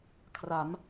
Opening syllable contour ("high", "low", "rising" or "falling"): rising